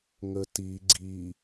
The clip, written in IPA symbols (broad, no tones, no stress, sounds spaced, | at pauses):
ŋ ə t i ɡ͡ǀ i